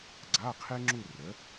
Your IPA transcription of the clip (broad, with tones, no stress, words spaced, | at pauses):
ɡ͡ǀa˧˥˧qʰe˥ ŋ͡ǁu˥˧rə˨˥